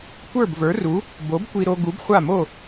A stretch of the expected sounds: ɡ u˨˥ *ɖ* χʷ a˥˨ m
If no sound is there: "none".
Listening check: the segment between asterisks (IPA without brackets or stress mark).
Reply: b